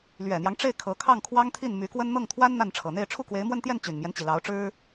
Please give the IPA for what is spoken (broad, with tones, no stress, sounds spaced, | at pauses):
l ɥ ɛ˨˩ n̪ j ɑ˦ ŋ ʈ͡ʂ e˥˩ ɪ̯ kʰ ɤ˧˥ kʰ ɑ˥˩ ŋ kʰ w ɑ˥ ŋ t̪ʰ i˥˩ n m y˧˥ k w ə˥ n n̪ ɤ˥˩ ŋ t̪ʰ w a˥ n n̪ a˥˩ n ʈ͡ʂʰ ɤ˨˩ n̪ e˥˧ ɪ̯ ʈ͡ʂʰ u˥˩ k w e˧˥ ɪ̯ m w ə˥˧ n t̪ j ɛ˥˩ n t͡ɕ y˨˩ n m j ɛ˦ n t͡ɕ i˩ l ɑ˧˥ ʊ̯ ʈ͡ʂ ɻ̩˥